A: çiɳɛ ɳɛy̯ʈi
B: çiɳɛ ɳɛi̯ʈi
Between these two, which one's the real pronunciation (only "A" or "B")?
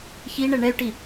A